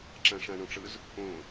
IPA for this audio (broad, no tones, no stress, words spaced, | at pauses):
ǁãʂãɳɔ̃ʈ͡ʂɯz | õ